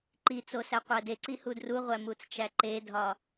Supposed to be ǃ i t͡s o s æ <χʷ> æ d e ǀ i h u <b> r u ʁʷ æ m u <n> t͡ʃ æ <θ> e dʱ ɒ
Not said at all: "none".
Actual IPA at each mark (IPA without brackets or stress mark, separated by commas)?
qʷ, d, t͡s, ǃ